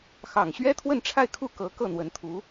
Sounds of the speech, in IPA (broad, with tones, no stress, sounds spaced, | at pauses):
x ɑ˨˩ ŋ ɕ ɥ ɛ˥ t̪ʰ w ə˥˧ n ʈ͡ʂʰ a˥˧ ɪ̯ kʰ u˥˩ k ɤ˧˥ k ɤ˥˩ n̪ w ə˧˥ n t̪ʰ u˧˥